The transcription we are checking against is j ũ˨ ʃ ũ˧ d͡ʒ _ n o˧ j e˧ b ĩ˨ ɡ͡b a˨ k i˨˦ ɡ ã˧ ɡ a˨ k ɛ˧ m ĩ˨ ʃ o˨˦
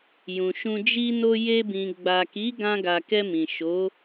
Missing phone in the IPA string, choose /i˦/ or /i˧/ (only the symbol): i˧